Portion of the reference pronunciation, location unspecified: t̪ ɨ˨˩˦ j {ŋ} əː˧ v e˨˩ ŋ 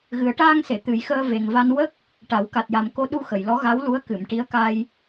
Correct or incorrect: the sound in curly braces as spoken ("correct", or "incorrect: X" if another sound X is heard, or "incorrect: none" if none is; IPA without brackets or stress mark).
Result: incorrect: x